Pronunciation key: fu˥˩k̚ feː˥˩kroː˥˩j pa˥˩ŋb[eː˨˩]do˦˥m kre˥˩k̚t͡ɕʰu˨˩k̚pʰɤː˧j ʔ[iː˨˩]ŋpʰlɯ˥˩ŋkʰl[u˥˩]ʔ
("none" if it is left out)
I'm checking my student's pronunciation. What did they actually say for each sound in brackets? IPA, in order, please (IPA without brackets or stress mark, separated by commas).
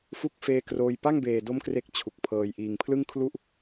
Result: eː˨˩, iː˨˩, u˥˩